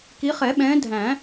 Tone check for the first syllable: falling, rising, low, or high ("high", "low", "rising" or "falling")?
rising